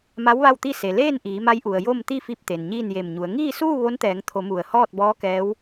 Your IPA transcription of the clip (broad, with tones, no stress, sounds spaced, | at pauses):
m a˧˥ w ʋ a˥˨ w t̪ i˥˨ s e˩ l eː˥˨ n ʔ iː˩˧ m a˧˥ j ʔ u˩ ə̯ j o˥˨ m t̪ i˥˨ f i˧ p̚ t̪ e˩ n ɲ iː˥˨ n j e˧˩ m ɲ u˩˧ ə̯ ŋ iː˥˨ s uː˥˨ ʋ o˧˥ n t̪ ɛː˩˧ ŋ t̪ʰ o˩˧ m u˧˩ ə̯ h ɔː˥˨ t̚ b ɔː˧˥ k ɛː˧˥ w